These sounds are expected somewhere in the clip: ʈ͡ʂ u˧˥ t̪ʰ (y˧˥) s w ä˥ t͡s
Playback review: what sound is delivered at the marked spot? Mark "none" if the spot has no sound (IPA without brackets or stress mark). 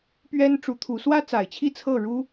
u˧˥